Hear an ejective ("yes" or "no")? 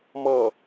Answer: no